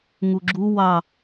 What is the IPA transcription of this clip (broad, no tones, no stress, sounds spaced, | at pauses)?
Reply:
ŋ u ɡ͡ǁ u w ɑ